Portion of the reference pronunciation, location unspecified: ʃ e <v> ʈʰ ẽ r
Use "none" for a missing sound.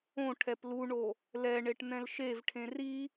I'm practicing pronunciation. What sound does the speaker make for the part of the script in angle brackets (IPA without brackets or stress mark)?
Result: v